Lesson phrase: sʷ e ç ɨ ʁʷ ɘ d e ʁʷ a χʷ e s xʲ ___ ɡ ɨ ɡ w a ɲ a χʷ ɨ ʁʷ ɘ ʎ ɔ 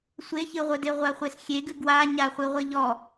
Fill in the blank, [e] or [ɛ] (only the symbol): e